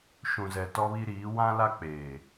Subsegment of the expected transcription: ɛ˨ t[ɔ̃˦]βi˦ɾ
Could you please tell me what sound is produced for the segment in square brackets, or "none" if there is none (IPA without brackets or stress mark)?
ɔ˦